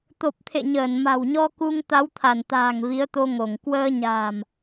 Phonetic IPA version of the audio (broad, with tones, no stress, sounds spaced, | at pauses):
t̪ o˨˩ p̚ t̪ʰ ḛ˧˨ ɲ əː˧˩ n m a̤˨˩ w ɲ ɔ˧ k u˧ ŋ t̪ a˨˦ w t̪ʰ a˧˩ n t̪ a̤ː˨˩ ŋ v i˨˦ ə̯ t̪ o˧ ŋ o˧˩ ŋ k w əː˧ ɲ a̤ː˨˩ m